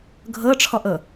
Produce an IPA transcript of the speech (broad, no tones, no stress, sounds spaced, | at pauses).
ɡʱ ɤ ʈ͡ʂʰ ɔ ʔ ɤ